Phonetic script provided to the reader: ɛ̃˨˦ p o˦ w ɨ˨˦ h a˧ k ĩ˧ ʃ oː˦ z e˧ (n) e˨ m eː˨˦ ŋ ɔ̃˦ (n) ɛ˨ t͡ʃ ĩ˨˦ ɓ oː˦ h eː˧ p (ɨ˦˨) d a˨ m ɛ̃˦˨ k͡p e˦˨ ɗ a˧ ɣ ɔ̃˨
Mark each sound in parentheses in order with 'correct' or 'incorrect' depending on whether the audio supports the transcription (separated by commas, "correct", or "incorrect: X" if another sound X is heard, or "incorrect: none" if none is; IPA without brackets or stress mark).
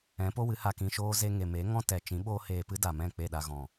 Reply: incorrect: ŋ, incorrect: t, incorrect: ɨ˦